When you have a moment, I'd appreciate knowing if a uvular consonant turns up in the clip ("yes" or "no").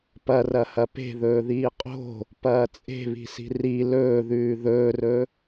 yes